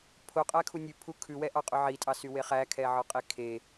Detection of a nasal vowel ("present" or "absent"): absent